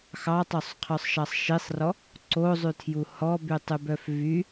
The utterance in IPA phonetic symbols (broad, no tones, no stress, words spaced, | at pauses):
xɑtˤosˤqʰœsˤʃɑsˤ ʃisˤrɔ | ǀozˤytʰju hɔbytˤybœf vy